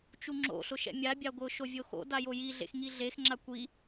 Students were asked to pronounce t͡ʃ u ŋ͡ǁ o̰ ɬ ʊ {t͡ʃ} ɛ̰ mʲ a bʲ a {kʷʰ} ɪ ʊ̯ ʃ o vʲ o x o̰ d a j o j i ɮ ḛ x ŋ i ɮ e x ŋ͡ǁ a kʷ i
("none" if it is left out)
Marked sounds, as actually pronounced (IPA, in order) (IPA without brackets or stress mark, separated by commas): ʃ, ɡʷ